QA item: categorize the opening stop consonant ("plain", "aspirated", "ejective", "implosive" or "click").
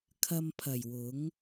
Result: aspirated